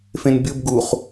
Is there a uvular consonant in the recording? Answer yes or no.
yes